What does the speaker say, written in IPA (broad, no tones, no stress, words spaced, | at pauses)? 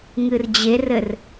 ŋɨrd͡ʑerɘr